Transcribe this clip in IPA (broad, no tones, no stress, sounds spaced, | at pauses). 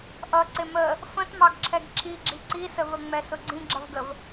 ʔ ʌ ǀ ɪ m ə | f ə̃ t m ɑ ɡ ǁʰ ɛ ɡ ǁʰ i ɡ͡ǁ i ǀ i s ə v ə ŋ͡m ɛ s ʊ ɡ͡ǀ ĩ ɡ͡ǁ ʌ v ɡ ə v